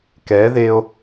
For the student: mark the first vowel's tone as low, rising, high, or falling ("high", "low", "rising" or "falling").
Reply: rising